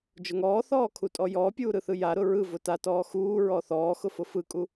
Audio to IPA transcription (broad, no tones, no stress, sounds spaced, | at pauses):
d͡ʒ ʊ ŋ ɔː θ ɔː kʰ u tʼ ɔ j ɔː pʲ uː ɾ ɯ θ ɯ j a ɾ ʊ ɹ ɯ v ʊ t a t ɔː x uː ɹ ɔ θ ɔː x ʊ f ʊ f ɯ kʼ u